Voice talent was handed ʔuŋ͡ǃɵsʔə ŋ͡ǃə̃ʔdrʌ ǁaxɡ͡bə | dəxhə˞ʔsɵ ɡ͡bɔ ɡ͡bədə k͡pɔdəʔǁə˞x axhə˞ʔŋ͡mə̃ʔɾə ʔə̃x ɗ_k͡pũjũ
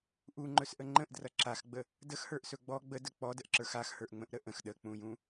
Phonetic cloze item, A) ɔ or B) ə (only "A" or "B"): B